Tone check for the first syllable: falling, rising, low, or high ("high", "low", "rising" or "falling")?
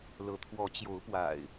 rising